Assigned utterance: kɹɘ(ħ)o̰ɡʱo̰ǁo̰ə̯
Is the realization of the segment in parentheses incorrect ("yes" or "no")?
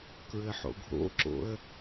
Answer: no